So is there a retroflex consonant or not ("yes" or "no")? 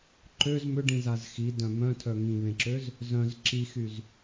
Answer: yes